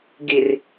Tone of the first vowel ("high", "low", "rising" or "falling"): low